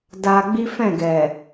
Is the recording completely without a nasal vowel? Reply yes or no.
no